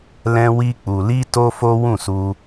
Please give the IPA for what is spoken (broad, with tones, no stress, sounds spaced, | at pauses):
l ɛ̃˦ w i˦ k͡p u˧ l i˦ t o˦ f o˦ w ũ˦˨ s u˧